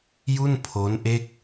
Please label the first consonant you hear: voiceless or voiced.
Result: voiced